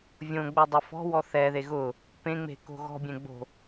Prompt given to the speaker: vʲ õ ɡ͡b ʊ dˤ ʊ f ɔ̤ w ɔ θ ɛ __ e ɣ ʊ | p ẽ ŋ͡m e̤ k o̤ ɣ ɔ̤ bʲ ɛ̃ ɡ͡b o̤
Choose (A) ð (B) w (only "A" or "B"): A